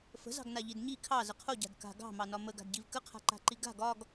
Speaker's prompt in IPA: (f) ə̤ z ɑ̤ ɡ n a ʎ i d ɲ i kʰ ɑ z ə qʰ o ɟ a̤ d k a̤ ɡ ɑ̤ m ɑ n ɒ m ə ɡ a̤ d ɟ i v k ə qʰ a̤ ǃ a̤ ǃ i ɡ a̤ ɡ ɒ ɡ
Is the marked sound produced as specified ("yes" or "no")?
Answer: yes